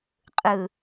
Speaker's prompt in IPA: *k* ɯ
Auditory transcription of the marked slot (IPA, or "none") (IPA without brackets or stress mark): qʼ